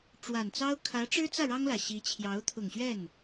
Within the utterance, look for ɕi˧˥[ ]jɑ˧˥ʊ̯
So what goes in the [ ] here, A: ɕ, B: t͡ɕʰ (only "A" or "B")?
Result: B